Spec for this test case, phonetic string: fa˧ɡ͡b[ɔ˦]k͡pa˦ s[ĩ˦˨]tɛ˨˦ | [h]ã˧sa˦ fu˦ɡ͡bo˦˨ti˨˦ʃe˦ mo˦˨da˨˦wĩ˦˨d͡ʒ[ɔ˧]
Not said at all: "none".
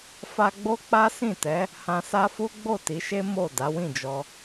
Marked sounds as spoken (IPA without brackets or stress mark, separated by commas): o˦, ĩ˦˨, h, ɔ˧